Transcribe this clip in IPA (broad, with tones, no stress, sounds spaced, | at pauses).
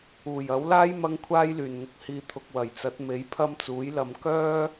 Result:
uː˨˩ j ɐ˨˥ w l aː˥ j m ɐ˥ ŋ kʷʰ aː˥ j l yː˨˩ n ŋ ʊ˧ k̚ h iː˧ t̪ʰ ʊ˧ k̚ w ɐ˨˩ j t͡s ɐ˨˥ t̚ m e˨˥ j pʰ ɐ˥ m t͡s uː˨˥ j l ɐ˧ m k œː˥